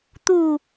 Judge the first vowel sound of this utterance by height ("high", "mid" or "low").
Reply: high